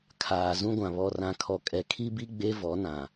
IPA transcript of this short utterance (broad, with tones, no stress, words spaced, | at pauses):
kʰaː˨zũ˦ɡʷã˨ βɔ˨rã˨kʰɔ˨ kʼɛ˨ kʰi˦bi˦ ɡ͡be˦ vɔ˨˦nã˨